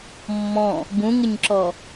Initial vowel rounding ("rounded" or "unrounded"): rounded